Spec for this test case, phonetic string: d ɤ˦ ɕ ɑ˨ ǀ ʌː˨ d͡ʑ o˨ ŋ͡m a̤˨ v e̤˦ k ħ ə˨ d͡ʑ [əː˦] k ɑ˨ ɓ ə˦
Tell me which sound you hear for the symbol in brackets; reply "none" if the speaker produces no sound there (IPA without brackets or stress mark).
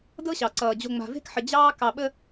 ɑː˦